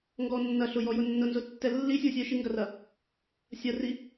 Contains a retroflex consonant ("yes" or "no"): no